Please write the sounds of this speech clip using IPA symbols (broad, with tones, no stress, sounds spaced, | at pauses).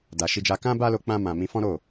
d a˧ ʃ i˦ d͡ʒ a˦ k ã˦ b a˦ l o˧ k͡p ã˧ m ã˨ m ĩ˧ f ɔ̃˦ ɾ o˦˨